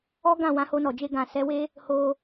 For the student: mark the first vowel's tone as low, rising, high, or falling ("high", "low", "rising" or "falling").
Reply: high